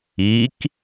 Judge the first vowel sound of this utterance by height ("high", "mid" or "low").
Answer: high